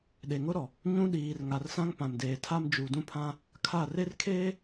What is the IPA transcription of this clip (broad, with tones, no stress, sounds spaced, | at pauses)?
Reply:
ɗ e˨ ŋ ʊ˦ ɾ ɔ˨ | ɲ ũ˦ ɗ iː˨ r ŋ a˨ r s ã˦ ŋ p ã˨ m d eː˨ tʰ a˦ m d͡ʒ u˨ d ũ˦ pʰ ã˦ | kʰ a˦˨ r e˦ r kʰ eː˦